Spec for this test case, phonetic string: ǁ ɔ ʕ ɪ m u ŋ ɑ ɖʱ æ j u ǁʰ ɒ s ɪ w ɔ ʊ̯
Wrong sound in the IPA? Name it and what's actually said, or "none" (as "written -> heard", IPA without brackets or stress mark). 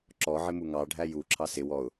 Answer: ɒ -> ɑ